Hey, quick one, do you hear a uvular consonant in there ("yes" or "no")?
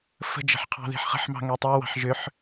yes